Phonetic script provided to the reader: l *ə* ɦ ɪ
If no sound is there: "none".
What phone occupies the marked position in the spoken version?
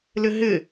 ɪ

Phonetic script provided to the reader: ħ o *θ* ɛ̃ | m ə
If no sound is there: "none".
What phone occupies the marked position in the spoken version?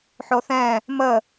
θ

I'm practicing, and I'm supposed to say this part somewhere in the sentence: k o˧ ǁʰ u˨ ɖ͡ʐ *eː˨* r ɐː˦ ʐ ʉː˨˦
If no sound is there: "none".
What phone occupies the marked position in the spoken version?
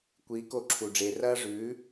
eː˨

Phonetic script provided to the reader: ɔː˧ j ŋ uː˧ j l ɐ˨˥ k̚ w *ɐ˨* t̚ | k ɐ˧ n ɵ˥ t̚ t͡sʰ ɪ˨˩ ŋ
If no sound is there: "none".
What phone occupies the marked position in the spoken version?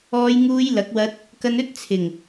ɐ˧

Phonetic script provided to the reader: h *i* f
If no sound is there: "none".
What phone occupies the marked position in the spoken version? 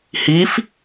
i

